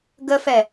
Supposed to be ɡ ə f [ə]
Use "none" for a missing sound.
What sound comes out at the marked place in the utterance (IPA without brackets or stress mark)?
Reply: ɛ